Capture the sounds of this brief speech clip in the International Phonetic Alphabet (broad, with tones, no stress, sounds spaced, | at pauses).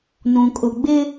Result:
n ũ˨ kʼ ʊ˨ ɡ͡b ɪ˦